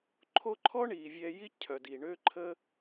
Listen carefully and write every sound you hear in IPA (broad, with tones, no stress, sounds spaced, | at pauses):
ǃʰ o˦ ǃʰ ɔ˦ ɳ i˨ vʲ ɛ˧ j i˦ cʰ œ˨ d i˨ ɳ ø˦ ǃʰ ə˦